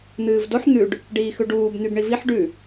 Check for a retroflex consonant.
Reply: present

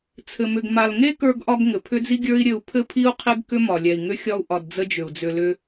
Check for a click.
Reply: absent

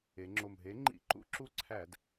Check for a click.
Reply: present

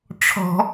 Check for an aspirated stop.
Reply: present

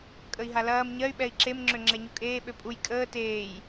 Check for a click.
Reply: present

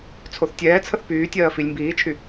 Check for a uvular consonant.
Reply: absent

